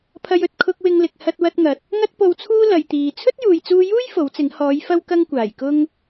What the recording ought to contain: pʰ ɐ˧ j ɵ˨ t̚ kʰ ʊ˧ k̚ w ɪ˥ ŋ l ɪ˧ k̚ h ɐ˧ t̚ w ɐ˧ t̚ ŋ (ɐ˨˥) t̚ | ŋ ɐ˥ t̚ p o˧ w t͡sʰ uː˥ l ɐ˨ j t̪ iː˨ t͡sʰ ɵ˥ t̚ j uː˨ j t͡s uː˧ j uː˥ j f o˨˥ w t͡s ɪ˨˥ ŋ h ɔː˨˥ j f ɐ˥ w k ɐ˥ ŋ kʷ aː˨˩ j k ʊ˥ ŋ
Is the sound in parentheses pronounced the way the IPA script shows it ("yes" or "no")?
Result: no